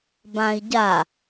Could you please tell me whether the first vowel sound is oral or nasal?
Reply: nasal